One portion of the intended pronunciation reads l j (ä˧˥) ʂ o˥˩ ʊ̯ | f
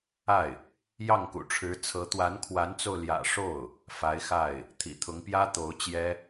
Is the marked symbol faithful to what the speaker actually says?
no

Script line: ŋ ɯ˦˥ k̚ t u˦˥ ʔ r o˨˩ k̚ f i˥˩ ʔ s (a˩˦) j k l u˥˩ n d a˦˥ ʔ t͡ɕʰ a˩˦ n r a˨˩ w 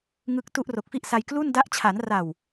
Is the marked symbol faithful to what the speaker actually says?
no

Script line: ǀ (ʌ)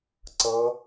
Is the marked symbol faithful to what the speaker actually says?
yes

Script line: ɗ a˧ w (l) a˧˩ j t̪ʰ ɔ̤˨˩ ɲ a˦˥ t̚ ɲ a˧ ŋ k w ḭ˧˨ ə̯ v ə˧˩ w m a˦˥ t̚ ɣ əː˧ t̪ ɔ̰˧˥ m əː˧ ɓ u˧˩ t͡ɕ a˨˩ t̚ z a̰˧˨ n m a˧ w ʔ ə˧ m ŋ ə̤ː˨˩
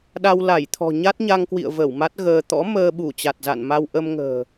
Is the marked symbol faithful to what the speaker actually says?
yes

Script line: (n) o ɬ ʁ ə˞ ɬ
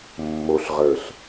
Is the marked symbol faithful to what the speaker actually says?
no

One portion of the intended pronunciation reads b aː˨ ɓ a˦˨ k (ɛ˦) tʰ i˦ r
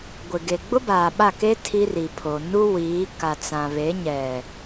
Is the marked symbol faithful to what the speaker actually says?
no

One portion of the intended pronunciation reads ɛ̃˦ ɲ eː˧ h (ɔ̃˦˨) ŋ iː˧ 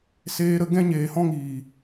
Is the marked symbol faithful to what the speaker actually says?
no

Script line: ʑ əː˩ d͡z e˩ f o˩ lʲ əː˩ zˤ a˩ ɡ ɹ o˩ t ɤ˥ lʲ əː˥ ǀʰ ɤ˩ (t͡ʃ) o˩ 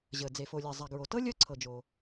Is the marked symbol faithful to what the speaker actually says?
no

